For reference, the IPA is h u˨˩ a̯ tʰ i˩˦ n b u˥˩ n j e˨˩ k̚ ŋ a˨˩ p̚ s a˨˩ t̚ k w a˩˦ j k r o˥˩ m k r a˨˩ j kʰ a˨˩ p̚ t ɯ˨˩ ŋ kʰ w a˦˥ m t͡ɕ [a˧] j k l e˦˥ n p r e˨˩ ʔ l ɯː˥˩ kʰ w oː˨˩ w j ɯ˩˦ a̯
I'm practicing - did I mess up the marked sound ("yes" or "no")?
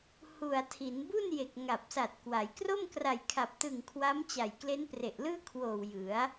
yes